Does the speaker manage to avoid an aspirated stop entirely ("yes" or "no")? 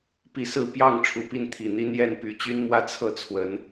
no